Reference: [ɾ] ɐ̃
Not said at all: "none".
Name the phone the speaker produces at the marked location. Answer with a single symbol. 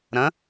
ɾ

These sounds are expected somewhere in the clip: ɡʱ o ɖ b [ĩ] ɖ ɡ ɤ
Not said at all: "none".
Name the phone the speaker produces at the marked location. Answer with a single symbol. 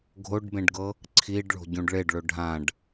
ẽ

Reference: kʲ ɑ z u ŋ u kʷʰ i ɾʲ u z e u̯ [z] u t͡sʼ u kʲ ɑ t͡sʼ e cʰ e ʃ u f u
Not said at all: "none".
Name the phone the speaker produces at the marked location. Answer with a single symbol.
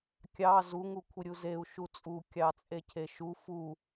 ʃ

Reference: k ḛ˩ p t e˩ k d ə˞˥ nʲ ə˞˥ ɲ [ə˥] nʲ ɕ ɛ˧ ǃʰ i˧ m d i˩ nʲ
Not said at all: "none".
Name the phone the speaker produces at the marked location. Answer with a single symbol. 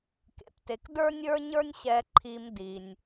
ə˞˥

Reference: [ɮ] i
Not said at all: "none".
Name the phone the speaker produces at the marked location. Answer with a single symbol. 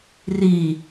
r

